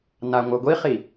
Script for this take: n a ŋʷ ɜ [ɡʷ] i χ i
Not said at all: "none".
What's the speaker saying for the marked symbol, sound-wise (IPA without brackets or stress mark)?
ɡʷ